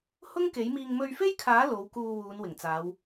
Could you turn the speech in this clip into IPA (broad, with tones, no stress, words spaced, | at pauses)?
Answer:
hʊ˥ŋke˨˥jmiː˧ŋ mɵ˧ɥfe˥jkʰaː˨˥ lo˨˧wkuː˧ wuː˨˧nwɪ˨˩ŋt͡saː˨˧w